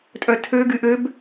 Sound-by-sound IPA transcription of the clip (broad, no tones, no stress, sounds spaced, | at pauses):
tʼ œ tʰ ø ɡ y ʔ ø b